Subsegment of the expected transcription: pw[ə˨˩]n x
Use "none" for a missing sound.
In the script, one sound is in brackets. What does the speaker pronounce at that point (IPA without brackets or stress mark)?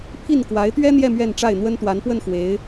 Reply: ə˥˩